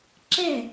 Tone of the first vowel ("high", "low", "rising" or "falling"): falling